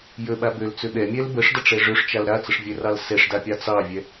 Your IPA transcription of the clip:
j ə ɓ a b ø l t͡s ø ɓ ɛ mʲ ɛ l b ə ʂ d ʌ ʈ͡ʂ ɛ ʐ ø ʂ t͡ʃ a l ɾ a t͡s ə ʂ vʲ ɛ r ɑ l s ɛ ʂ d a pʲ ɑ t͡s ɑ vʲ ɛ

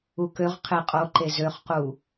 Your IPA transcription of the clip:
u k ø ʁ qʰ e qʼ o ǃ e z ø χ q u

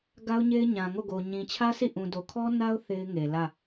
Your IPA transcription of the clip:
ɡ a˦ ʊ̯ ɲ e˦ ɪ̯ ɲ ã˨ ŋ o˦˨ ɡ o˨ ɲ ĩ˨ t͡ɕʰ ä˦ s i˦˨ ʔ ũ˨ d o˨ kʰ ɔ˦ n a˦ ʊ̯ θ e˦ ɪ̯ ŋ e˨ l ä˦˨

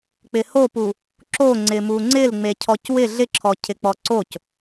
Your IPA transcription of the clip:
k͡p ɪ h o p u | ǁ o ŋ͡ǀ ɪ m u ŋ͡ǀ ɪ l ŋ͡m e cʰ ɔ c w ɪ ɮ ɪ ǁʰ ɔ cʰ ɪ k͡p ɔ ǀ o c

